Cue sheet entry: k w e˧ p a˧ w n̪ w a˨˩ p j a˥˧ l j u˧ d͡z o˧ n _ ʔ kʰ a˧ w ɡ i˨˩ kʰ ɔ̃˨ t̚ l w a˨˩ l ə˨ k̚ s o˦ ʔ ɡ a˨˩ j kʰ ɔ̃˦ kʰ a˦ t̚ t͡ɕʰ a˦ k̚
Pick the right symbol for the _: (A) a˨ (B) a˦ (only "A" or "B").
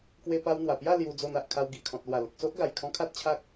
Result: A